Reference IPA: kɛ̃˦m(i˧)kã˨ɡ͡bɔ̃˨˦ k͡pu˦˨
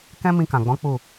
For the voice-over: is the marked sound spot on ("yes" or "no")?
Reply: no